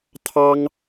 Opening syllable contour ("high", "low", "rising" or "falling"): high